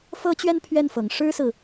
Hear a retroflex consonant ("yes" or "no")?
yes